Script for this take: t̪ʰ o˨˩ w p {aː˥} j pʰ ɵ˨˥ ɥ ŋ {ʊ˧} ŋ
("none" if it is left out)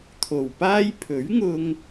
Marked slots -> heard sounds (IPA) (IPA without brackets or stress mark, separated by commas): aː˥, ʊ˧